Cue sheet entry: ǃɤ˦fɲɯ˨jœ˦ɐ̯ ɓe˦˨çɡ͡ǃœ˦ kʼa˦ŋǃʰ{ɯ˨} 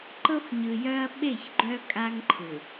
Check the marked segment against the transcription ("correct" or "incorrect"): correct